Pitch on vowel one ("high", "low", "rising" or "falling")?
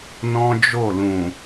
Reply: high